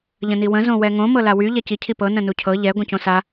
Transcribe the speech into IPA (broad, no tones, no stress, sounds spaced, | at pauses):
ʎ ə̃ n i w ə̃ z õ w ɛ ŋ õ m ɤ l a w y ʎ ɛ c i cʰ i p ɤ n ə̃ n u cʰ ɤ ʎ ɛ ɡʷ ə̃ c õ s a